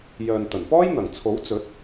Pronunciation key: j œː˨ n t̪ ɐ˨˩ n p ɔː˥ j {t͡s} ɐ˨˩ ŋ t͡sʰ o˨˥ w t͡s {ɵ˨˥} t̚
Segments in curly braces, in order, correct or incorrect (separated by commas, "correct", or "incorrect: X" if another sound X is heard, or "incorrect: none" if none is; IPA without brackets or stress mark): incorrect: n̪, correct